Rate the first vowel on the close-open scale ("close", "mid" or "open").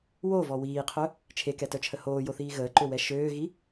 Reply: mid